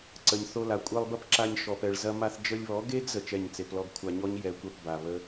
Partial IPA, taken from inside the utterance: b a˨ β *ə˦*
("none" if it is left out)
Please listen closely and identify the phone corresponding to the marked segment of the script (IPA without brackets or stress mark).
ə˦